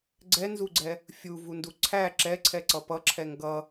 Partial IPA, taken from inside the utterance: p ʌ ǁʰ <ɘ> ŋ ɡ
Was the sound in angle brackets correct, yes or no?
no